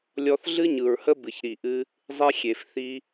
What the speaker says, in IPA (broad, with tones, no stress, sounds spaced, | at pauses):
lʲ ɔ˧ θ ɮ ɨ˦ ɲ ɯ˨ ɹ h ə˦ b ɨ˨ ç ɾ i˨ ʔ ɨ˦ | zˤ e˦ xʲ e˨ f θ i˦